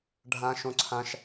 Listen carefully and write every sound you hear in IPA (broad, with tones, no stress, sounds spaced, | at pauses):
ɖʱ ã˥ ʃ õ˥ ǀʰ ã˥ ʃ